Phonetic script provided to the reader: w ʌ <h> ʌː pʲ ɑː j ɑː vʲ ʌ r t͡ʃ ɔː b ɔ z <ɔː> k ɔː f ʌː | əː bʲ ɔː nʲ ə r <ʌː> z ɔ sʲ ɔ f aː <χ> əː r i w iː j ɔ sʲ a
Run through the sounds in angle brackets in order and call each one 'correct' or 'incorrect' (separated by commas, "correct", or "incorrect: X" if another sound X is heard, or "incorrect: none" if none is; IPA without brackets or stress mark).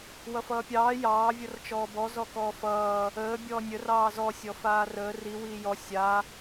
incorrect: f, incorrect: ɔ, incorrect: ɑː, incorrect: r